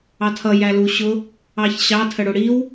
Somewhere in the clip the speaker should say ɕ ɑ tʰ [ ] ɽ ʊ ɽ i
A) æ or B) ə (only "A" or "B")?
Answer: B